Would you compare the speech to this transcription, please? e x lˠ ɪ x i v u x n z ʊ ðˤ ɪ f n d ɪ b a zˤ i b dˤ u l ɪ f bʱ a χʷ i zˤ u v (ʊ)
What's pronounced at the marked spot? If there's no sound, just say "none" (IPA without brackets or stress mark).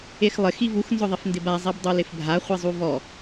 ɔ